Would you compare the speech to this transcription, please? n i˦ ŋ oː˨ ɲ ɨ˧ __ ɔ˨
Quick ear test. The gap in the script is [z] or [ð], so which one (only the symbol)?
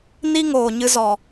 z